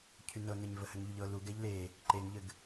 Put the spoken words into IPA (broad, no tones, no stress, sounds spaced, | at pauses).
cʰ y n ɤ n ɛ ɲ v ə h ɘ ŋ ʎ y ʎ ɤ l u ɡ ɛ ʎ l e | ǃ e ŋ ʎ ɘ ɡ